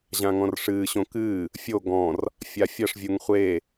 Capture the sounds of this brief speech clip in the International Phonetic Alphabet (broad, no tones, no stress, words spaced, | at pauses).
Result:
ʑãŋɔ̃rʂɨː ɕõkɨː | fʲo ɡɔ̃r | fʲafʲɐʂ vʲuŋχʷe